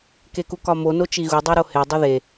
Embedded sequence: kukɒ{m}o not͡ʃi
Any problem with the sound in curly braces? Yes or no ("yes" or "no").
no